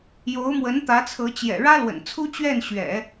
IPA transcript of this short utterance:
jo˧˥ʊ̯mwə˧˥nt̪ä˧˥t͡sʰɤ˧˥ t͡ɕjɛ̰˨˩ɻä˥lwə̰˨˩n t͡sʰu˥t͡ɕɥɛ˥˩nɕɥɛ̰˨˩˦

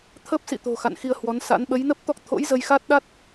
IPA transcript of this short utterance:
t̪ʰə˦˥p̚sḭ˧˨t̪o̤˨˩ xa̰˧˨nxi˧ə̯hwɔ˨˦nsa̰˧˥n ɓə˨˦jnə˦˥p̚t̪ɔ˦˥k̚ t̪ʰo̰˧˥jzə˧jxa˦˥t̚ɗa˦˥t̚

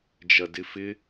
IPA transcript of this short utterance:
d͡ʒɐdɪfɪ

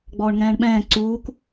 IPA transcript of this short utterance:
ɡ͡bɔːɳŋɛ̃ːɳɓɛ̃ː ǀuːk

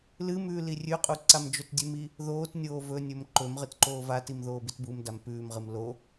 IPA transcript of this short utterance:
lɨmʉː lirʲʉqʼu ǀamd͡ʒɵtdʲʉmi | ðoːtnʲoː vɵnʲɵm ǃɵm ʁɨtǃoːvatim ðoːbitbumdam pʉːmʁɨm lo

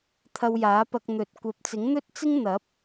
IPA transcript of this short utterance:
t̪ʰɐ˧wjaː˨˥pɐ˧k̚ n̪ɵ˨t̚ kʷɐ˨˥p̚t͡sɪ˨˥ŋn̪ɵ˥t̚t͡sɪ˥ŋ n̪ɐ˨˥p̚

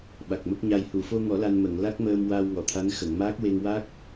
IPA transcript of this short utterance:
ɓa˨˩k̚mə˦˥k̚ɲa˧j hu˨˩˨ fo˧ŋɔ˨˩˦ la˧nmə˨˩˨ŋ la˦˥k̚məː˧m waː˧wŋɔ˨˩˨t̪ʰa˧˥n xə˨˩˨ŋmaː˦˥k̚we˧ŋ wa˦˥k̚

